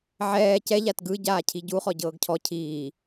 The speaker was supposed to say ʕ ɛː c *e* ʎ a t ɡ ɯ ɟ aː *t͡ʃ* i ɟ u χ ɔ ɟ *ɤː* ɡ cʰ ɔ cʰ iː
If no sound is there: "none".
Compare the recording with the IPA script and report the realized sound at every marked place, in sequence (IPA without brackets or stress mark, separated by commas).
ɛ, cʰ, ɤː